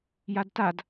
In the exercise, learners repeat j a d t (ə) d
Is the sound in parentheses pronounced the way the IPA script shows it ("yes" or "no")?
no